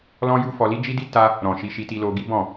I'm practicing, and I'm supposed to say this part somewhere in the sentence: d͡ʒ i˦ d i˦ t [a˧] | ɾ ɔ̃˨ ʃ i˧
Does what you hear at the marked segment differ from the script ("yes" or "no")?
yes